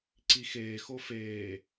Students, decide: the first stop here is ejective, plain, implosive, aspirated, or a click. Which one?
click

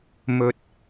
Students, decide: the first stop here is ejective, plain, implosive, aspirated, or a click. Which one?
plain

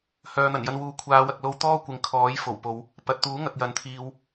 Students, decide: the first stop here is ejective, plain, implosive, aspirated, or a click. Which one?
aspirated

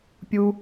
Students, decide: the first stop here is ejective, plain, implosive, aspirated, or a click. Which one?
plain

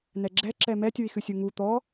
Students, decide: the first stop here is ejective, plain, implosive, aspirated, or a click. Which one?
click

